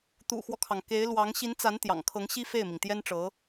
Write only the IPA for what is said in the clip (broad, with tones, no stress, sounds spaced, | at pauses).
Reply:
t̪ ṵ˨˩ x w ɔ˦ kʰ ɑ˩ ŋ k e˧˥ ɪ̯ l w ɑ˧˥ ŋ ɕ i˧˥ n t͡s a˧˥ n t̪ j ɑ̰˨˩ ŋ kʰ ɤ˧˥ ŋ ɕ i˥ f e˥˩ ɪ̯ m i˩ ŋ t̪ j ɛ˥ n ʈ͡ʂ ɤ˧˥